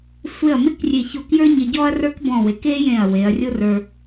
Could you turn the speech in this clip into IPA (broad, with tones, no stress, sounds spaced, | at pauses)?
sʷ e˧˩ ɐ̯ m ɪ˥ k rʲ e˧˩ ç o˧˩ k j ə˞˥ ɲ ɪ˧ ɟ ɔ˥ ɐ̯ r ə˞˥ k b ɔ̃˧˩ w e˩˧ k e˥ j ẽ˧˩ ɐ̯ w e˩˧ ɐ̯ rʲ o˥ r ə˞˧